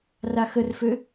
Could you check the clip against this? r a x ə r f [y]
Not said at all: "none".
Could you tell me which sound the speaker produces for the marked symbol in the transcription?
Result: ø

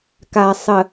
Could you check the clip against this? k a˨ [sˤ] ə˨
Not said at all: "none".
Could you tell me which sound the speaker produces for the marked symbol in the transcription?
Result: sˤ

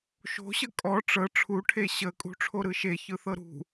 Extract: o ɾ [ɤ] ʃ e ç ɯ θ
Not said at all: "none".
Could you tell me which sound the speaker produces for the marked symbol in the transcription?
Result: ɯ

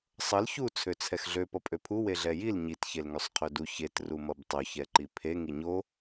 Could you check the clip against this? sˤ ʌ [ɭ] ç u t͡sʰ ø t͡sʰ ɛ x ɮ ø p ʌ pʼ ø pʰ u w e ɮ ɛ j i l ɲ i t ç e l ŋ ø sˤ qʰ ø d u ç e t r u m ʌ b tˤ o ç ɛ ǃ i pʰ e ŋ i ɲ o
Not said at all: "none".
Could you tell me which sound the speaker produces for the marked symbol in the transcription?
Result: l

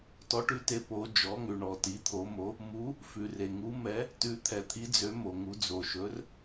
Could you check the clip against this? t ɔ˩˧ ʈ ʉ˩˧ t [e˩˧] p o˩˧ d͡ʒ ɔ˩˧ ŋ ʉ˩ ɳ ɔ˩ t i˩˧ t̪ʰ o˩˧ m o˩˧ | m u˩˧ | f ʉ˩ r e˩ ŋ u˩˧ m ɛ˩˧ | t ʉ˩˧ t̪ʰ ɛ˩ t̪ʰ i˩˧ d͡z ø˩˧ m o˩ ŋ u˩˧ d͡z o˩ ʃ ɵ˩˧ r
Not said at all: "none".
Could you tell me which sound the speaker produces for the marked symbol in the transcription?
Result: e˩˧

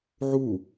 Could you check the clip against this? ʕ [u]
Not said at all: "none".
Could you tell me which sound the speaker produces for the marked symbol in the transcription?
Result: u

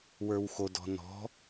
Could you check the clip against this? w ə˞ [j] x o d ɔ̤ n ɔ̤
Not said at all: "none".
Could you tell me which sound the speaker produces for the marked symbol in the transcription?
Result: w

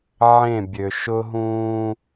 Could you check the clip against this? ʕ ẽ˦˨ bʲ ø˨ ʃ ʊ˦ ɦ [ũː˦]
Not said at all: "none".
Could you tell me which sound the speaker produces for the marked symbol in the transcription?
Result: ũː˦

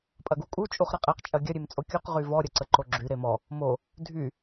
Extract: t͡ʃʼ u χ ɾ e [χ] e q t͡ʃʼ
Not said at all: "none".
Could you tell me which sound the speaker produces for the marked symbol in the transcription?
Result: qʼ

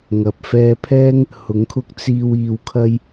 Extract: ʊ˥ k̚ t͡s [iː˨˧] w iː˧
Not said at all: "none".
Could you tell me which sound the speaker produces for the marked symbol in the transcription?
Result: iː˥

